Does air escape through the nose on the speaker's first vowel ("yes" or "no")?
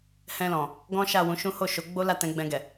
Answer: yes